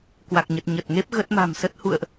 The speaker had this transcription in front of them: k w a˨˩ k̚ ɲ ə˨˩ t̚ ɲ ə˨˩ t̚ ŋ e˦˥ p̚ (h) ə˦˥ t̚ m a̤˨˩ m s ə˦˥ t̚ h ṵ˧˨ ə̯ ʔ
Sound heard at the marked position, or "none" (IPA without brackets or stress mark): ɣ